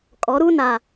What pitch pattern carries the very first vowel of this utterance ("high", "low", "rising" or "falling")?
rising